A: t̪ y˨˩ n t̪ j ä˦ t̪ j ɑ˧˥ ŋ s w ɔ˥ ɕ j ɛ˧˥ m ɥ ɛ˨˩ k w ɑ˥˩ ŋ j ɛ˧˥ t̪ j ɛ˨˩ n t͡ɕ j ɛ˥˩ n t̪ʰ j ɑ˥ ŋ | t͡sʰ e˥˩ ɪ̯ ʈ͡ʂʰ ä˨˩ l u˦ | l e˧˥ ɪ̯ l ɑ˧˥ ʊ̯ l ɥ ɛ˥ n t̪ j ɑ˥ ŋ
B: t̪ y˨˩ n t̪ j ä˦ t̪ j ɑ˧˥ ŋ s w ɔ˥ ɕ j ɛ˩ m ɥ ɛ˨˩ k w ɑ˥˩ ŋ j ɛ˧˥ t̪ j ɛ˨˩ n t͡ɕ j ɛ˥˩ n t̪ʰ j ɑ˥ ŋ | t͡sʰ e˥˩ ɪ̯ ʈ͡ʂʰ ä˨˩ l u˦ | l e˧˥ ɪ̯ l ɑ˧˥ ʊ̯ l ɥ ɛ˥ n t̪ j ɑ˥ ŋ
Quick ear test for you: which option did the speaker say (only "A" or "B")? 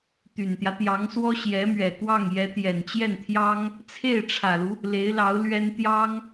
A